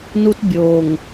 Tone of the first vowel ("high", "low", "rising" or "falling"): high